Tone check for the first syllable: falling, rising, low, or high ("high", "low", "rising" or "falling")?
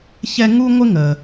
high